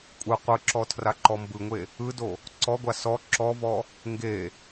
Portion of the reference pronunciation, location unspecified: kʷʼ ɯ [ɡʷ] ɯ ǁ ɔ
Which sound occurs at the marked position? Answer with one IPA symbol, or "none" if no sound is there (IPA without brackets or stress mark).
qʷ